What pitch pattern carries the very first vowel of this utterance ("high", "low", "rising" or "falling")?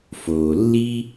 low